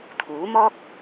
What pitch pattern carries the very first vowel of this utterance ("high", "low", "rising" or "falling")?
rising